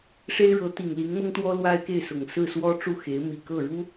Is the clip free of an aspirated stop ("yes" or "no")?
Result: yes